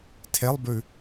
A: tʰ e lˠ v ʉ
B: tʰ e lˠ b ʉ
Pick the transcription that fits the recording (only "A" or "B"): B